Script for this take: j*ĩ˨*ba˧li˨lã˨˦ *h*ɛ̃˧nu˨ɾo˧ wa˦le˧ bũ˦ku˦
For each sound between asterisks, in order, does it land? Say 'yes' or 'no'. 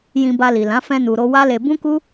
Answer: no, no

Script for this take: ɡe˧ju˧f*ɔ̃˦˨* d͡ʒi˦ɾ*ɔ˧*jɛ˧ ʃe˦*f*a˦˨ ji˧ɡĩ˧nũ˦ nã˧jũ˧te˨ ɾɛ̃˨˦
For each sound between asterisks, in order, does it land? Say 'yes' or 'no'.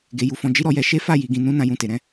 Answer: no, yes, yes

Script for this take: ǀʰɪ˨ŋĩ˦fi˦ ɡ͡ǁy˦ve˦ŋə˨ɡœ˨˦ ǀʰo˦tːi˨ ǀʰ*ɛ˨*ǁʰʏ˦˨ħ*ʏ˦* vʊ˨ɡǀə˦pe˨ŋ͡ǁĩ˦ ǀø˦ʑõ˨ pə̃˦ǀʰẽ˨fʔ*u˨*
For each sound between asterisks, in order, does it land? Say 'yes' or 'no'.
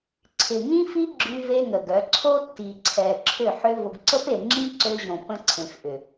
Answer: yes, yes, no

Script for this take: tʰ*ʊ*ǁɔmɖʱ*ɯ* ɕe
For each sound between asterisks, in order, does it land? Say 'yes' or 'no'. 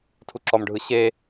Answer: no, yes

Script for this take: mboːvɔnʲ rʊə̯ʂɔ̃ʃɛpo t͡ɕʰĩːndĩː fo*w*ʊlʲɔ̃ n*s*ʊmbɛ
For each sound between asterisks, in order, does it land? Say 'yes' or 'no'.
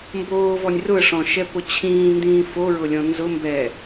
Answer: no, no

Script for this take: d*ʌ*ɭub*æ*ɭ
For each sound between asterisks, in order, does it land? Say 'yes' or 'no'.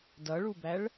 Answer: yes, yes

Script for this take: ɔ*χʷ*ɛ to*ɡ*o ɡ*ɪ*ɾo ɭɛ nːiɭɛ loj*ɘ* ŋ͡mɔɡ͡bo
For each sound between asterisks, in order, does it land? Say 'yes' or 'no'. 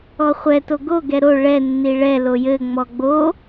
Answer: yes, yes, no, yes

